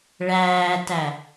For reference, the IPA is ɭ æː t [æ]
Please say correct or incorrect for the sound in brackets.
correct